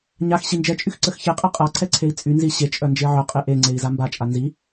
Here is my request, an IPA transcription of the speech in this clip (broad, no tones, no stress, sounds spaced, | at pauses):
ɲ a x ɕ i n d͡ʒ ɛ t͡ʃʼ y x ǀ ə x ç e qʼ ɛ qʼ a ǀʰ ɛ ǀʰ e i̯ t͡sʼ y n z i ɕ e t͡ʃʼ œ n d͡ʒ e ʕ œ qʼ e ʔ e ŋ͡ǀ e i̯ z a m b a t͡ʃʼ a n z i